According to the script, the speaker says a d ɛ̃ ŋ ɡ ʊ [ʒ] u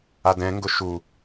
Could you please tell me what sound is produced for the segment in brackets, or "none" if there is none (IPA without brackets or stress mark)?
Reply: ʃ